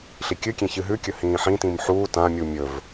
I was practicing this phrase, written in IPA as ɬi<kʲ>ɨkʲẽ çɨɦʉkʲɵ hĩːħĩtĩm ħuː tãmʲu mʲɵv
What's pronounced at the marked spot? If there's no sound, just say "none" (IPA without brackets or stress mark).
kʲ